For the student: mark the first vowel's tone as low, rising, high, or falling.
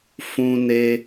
high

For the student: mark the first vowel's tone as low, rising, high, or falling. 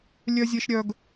high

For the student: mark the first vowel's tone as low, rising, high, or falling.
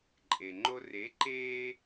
low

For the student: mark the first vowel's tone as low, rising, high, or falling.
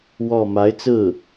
falling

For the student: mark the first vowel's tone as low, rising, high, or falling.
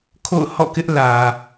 falling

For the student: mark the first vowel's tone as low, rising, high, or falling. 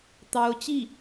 rising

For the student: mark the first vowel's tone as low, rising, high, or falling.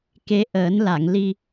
rising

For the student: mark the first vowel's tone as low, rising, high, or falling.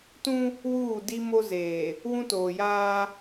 high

